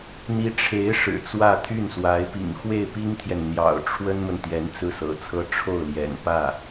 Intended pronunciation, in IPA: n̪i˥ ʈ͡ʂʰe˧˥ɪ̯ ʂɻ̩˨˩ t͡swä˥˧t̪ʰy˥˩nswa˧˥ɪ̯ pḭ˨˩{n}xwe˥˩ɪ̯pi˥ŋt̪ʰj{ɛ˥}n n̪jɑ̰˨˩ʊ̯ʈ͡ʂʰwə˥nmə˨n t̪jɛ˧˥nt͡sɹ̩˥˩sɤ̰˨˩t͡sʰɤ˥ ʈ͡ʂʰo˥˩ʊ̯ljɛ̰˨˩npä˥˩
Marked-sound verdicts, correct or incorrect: incorrect: ŋ, incorrect: ɛ˨

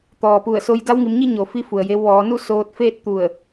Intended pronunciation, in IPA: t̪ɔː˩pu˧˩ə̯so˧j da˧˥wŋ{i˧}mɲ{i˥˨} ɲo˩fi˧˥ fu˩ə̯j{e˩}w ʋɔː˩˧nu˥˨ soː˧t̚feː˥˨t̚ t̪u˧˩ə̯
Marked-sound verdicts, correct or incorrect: incorrect: i˩˧, correct, incorrect: e˧

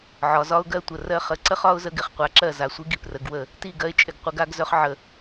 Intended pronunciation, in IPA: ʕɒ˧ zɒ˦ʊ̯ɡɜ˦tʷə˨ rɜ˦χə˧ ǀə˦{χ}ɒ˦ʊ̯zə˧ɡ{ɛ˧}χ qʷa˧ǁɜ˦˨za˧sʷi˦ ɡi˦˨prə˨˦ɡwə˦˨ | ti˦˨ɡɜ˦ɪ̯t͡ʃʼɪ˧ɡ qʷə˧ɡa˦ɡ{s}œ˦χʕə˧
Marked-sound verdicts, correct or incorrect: correct, incorrect: ɪ˧, incorrect: z

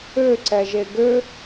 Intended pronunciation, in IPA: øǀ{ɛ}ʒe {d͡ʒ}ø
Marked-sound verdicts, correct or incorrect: correct, incorrect: ɡ

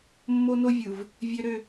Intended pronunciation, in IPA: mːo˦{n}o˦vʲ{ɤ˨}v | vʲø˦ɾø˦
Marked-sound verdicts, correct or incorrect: correct, incorrect: ɯ˨

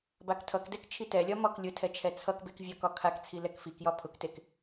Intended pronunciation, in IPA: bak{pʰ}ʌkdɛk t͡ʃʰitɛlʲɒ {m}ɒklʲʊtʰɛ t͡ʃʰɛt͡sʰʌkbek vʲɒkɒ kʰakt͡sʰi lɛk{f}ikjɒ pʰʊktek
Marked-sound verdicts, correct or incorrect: incorrect: tʰ, correct, correct

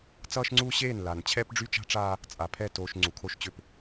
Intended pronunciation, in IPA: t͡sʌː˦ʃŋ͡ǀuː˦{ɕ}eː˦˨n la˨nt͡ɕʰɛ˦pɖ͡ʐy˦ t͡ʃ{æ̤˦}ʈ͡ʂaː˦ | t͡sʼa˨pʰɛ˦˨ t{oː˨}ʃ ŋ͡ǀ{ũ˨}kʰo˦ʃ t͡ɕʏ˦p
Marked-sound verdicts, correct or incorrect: correct, incorrect: a̤˦, correct, incorrect: u˨

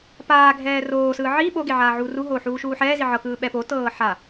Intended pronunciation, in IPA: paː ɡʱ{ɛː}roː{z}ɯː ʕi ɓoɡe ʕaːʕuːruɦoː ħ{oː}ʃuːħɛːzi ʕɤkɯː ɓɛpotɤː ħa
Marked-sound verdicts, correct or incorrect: correct, incorrect: s, incorrect: uː

